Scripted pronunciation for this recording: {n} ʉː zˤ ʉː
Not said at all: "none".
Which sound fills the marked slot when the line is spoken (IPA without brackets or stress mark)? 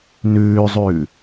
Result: n